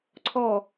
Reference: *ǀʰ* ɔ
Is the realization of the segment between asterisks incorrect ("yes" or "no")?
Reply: no